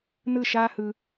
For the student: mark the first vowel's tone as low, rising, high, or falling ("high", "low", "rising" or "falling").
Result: falling